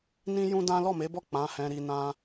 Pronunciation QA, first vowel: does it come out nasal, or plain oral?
nasal